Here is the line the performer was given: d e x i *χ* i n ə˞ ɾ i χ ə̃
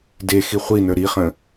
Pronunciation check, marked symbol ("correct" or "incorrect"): incorrect